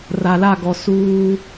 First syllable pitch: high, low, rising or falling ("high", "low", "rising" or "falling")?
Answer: low